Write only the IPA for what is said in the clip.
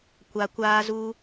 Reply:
kʷa˨kʷaː˧zu˧

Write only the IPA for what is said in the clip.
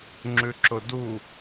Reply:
ŋ͡ǁʉǁʊdu

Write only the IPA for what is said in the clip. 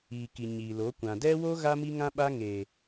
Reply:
iː˨ki˨ ɲiː˨lo˨˦ kʷã˨dɛ˦wo˦ ɣa˦ mi˦ŋã˦ɓa˦ ŋe˨

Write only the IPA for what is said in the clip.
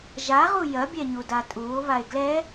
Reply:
ʒaʁu jɐbʲɛɲuda tʼuːo̯βae̯ ɡlɛ

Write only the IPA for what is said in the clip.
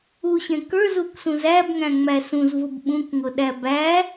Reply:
uɕɛ̃ kə˞zuksũz æbŋæ̃ŋ͡mæ sũzvʊb ɓũkŋʊɗæ bæ

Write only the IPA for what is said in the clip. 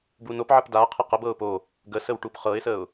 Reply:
bunopʕəp da qʰɤqəbɤʊ̯ po | ɡəsəw ʈupχɤɪ̯səʊ̯

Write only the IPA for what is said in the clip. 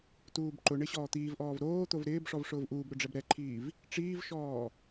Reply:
tuːbǃʊɳɪ ɕɔːt̪iːvʔɔːv ɾoːt̪ov ɾɪːbʂɔv ʂʊːvʔuːbɾʊ ɖ͡ʐɛbɾɛǃʰiːv | ʈ͡ʂiːvʃɔː

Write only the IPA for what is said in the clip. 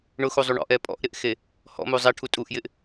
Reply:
ɳʊxuzˤu ɳɔ̰ʔɛ pʼɔ̰ʔɾɪʔxe | hɔ̰mu zˤɛʈʰu tʼuʔjɪʔ

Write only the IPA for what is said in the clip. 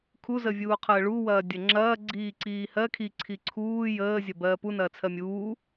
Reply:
kʰuzəvʲuːqʰəː ɭuwɐːdʲɐ ŋ͡ǁɐː ɡ͡ǀiːǀiːhɜ kʰiǀʰi ǀʰuː jəːzʲɐ bɜːpunɐː t͡sʰɜmʲuː

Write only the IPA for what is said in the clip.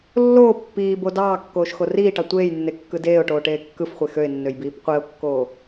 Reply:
lːoː pːiːbo dɑːkːoːʃxo riːʈɑ tʷeːjnːekːɯ deːʊ̯ʈoːʈeː kːɯfχʷe xøɪ̯nːøjbiːp qʷeʊ̯kːoː

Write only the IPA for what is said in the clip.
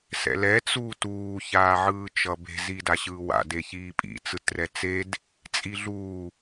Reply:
sɛ̰lɛ t͡suːtuː çaːʕɯːt͡ʃʌbe̤ zidaɕɯːwa̰ deçiːpʼḭ t͡sɯtrɛt͡sed | t͡sʼiɮuː

